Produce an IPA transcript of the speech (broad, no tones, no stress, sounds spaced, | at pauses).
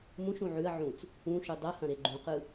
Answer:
m ũ ʃ ũ ʕ ʉ ɐ̯ ʕ ũ t͡s | ũ ʃ u dˤ ɐ h ɐ̃ ɾ e ɡ͡ǃ ũ q ɯ